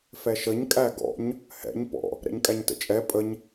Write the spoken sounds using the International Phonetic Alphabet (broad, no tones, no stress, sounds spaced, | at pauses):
f ɛ ʃ ə ɲ kʼ æ ɡ ɔ̰ ɲ | h ɛ̰ ɲ p ɔ̰ | ɾ ɛ̰ ɲ kʼ æ ɲ t ə̰ t͡ʃʼ ɛ pʼ ə ɲ